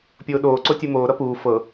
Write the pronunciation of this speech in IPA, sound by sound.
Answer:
pʲ oː ɗ oː ǀ o tʲ u m oː ɾ ʌ p uː f ɤ

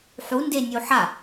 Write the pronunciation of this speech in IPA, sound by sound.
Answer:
ħ u n d e nʲ u ħ a

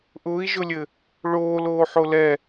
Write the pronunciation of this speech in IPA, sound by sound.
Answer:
ʔ ʊː i̯ ʒ ʊ lʲ ɘ | ɭ oː l oː ħ o l ɛ

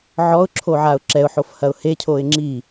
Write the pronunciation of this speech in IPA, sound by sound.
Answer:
ʕ ɔ ʊ̯ ǁʰ o ʕ a ʊ̯ ǁ ɛ ʊ̯ ħ o f h ɐ ʊ̯ h e cʰ o ɪ̯ ŋ͡ǁ i

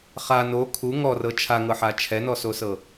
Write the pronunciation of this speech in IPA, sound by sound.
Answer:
χ a n o kʰ u ŋ ɔ r ɤ t͡ʃʰ a ŋ ɤ ħ a t͡ʃʰ ɛ n ɔ s o s ɤ

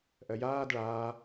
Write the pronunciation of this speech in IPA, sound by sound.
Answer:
ʔ ɜ j aː d ɭ aː

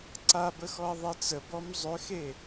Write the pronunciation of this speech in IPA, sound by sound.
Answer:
ǀ a b ə x ɔ ɐ̯ ðˤ e t͡s ə b ɔ m zˤ ø x e

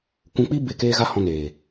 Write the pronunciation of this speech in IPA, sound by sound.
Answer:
kʷ ũ˧ k͡p i˦ b e˦˨ k eː˦ ɣ a˦ h ɔ̃˧ n eː˨

